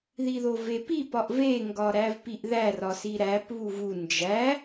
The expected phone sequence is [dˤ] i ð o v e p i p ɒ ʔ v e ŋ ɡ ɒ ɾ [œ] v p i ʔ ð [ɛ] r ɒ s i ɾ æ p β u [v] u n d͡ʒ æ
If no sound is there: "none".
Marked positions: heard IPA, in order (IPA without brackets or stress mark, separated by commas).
ð, æ, æ, v